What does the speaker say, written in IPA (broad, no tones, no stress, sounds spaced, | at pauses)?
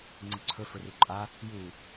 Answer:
ŋ͡ǀ ɯ ǀʰ ɵ f ɵ r u ǃʼ a | j u